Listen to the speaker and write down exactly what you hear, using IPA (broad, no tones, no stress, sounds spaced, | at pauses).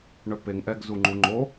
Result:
ɳ œ p e ŋ ʔ ɛ ɡ z u ŋ͡ǃ u ŋ͡ǃ o